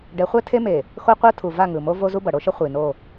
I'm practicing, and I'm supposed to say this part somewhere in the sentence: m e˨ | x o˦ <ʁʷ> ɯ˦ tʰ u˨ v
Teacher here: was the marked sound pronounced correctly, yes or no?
no